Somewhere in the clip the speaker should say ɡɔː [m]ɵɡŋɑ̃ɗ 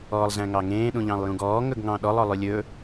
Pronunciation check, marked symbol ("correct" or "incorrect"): incorrect